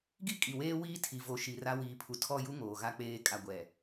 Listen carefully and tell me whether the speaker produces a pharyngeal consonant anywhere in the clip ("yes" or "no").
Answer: no